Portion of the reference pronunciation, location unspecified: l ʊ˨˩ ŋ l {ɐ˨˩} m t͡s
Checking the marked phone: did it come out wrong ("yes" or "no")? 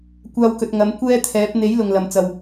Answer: no